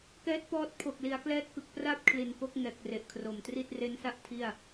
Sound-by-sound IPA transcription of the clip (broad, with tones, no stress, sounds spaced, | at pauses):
k ɛː˦˥ t̚ p ɔː˦˥ t̚ pʰ o˨˩ k̚ l i˩˦ a̯ k l ɛː˦˥ t̚ k ɯ˨˩ k̚ p r a˥˩ p̚ kʰ l i˨˩ n k o˦˥ k̚ ŋ ɛː˨˩ k̚ r e˨˩ ʔ kʰ r o˨˩ m t r i˥˩ t̚ r e˦˥ n s a˥˩ ʔ tʰ i˥˩ a̯